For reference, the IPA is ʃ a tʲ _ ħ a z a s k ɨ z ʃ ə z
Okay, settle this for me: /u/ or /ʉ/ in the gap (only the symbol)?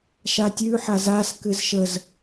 ʉ